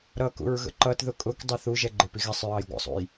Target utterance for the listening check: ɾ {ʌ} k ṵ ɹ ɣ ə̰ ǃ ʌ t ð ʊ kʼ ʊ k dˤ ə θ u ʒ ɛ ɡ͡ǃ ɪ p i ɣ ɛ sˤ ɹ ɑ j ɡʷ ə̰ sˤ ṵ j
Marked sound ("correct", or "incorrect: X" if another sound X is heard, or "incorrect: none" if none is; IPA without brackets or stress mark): correct